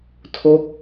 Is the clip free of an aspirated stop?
no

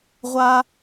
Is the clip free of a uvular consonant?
no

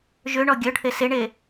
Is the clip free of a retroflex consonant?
no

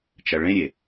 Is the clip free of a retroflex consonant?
no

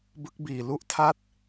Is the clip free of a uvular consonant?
yes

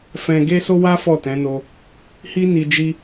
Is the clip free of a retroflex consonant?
yes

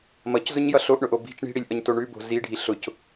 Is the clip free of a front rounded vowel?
yes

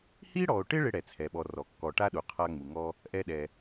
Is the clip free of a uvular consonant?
no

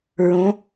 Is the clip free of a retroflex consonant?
yes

